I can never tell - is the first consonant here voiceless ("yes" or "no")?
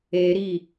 no